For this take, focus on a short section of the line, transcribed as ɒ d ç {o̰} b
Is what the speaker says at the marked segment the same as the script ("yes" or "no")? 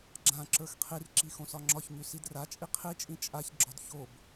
no